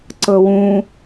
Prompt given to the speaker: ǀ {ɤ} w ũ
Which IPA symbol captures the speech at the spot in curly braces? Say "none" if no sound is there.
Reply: ɤ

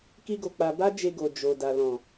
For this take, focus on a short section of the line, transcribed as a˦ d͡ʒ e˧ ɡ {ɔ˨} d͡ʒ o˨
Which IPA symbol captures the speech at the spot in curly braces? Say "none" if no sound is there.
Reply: o˨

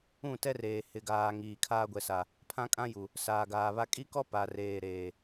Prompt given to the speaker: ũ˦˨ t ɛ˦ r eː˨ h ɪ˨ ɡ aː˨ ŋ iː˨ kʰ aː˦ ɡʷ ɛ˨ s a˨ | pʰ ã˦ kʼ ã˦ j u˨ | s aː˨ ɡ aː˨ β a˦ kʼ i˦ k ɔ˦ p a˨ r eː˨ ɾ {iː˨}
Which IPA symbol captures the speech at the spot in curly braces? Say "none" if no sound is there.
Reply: eː˨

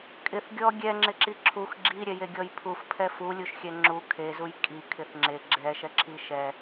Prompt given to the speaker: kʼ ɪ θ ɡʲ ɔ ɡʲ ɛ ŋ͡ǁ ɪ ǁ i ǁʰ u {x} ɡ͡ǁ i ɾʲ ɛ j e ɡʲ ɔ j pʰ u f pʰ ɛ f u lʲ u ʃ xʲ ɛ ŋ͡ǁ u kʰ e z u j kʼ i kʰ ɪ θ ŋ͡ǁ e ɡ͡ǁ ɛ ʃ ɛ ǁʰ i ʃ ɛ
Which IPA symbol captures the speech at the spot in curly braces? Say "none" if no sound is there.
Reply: x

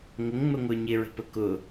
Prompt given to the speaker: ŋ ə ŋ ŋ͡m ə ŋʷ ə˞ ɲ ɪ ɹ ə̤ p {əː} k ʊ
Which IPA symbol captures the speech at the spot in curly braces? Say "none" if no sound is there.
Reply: ə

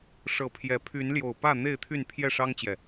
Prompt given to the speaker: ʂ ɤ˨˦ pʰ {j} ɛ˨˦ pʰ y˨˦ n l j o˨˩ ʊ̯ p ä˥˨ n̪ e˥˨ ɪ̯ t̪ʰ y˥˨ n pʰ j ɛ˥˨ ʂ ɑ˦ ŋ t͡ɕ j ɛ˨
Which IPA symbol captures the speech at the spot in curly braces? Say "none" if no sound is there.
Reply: j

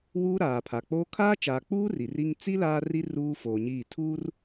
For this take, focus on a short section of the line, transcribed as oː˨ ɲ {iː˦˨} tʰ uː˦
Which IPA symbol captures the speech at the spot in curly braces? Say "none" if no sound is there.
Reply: iː˦˨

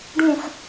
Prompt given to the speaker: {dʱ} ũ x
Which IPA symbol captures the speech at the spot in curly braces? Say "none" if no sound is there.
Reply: ɖ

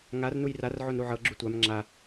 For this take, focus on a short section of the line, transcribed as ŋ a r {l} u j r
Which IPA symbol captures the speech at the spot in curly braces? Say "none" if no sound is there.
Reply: n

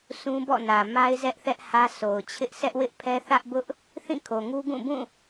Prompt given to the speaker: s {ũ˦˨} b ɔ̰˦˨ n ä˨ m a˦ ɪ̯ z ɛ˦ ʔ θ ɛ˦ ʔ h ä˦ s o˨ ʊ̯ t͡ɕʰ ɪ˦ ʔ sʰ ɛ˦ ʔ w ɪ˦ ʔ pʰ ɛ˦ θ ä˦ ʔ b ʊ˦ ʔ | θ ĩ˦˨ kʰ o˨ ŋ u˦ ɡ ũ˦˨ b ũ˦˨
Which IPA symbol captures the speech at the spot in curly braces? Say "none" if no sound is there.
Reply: ũ˦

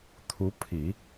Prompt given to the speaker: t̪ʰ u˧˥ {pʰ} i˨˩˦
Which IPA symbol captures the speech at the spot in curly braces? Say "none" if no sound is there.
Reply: pʰ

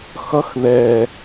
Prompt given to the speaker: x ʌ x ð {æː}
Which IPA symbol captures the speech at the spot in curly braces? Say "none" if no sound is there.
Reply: ɛː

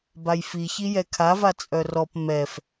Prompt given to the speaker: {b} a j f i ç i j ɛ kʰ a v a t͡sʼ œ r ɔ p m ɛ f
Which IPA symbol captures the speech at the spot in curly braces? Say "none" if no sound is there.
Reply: b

